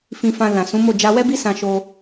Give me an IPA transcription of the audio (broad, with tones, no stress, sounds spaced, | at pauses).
f ĩ˧ f ã˧ l ã˨ s ũ˨˦ m o˦˨ d͡ʒ a˧ w ɛ˦ b i˦ s ã˧ ʃ o˧